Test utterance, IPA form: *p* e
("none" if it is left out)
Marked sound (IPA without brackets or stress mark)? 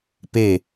p